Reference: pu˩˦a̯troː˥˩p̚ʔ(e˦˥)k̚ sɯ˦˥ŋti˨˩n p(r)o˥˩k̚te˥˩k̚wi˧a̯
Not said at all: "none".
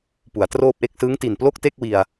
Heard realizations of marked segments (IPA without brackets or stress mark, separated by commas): e˥˩, l